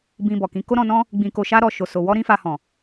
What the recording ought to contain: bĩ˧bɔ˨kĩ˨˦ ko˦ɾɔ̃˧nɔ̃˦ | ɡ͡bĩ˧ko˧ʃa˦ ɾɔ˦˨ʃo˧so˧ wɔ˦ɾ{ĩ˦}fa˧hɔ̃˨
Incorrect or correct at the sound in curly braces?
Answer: correct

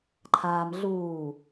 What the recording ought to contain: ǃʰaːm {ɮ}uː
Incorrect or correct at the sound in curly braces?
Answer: correct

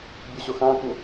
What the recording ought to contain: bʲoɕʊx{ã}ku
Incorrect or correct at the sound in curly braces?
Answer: correct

